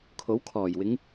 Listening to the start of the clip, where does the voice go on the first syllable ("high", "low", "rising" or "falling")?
rising